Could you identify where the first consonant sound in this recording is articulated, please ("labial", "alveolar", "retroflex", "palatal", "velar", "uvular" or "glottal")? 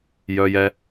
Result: palatal